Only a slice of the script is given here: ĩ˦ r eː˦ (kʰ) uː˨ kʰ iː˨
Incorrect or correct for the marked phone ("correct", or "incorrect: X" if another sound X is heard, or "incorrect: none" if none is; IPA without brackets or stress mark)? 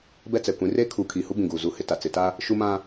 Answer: correct